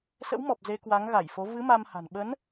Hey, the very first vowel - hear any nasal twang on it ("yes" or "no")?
no